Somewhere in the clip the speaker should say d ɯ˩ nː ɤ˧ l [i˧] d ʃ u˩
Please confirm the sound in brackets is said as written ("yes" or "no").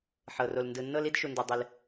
yes